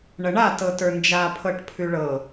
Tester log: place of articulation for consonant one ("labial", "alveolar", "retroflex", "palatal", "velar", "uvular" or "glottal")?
retroflex